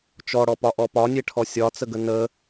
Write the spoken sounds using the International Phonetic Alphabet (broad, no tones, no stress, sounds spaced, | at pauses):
t͡ʃ ɔ ɽ ɔ p ɒ ʔ ɔ p ɒ nʲ e ʈʰ ɔ sʲ ɒ t͡s ə ɡ ə n ə